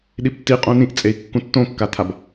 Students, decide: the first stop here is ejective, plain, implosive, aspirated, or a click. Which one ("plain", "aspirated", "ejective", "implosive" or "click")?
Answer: implosive